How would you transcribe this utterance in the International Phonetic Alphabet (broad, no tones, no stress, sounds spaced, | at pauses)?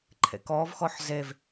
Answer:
ǃʰ ḛ k ɔ v x ɔ ħ z e v